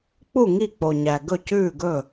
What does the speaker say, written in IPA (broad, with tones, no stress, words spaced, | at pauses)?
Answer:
k͡pu˥˩ ŋi˥˩k͡po˨˩ɲæ˨˩ ɡɵ˥˩cʉː˥˩ɡɵ˥˩